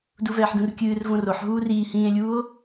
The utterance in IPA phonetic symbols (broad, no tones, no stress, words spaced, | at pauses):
duvɛːħdũrkʲɨːr võroħ ɦuːriː hĩːe̯lʲuːo̯